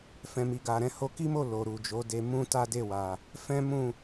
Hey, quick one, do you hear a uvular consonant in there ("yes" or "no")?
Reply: no